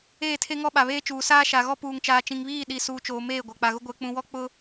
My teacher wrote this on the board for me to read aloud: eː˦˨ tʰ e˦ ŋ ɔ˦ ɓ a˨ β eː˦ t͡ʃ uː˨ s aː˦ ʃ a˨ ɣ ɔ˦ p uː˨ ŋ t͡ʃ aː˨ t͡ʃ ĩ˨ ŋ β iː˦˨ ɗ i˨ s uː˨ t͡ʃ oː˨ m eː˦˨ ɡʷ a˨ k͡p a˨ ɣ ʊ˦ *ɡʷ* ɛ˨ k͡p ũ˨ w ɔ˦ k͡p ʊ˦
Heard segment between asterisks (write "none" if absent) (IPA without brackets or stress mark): ɡʷ